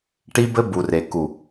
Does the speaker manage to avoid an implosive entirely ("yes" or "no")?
yes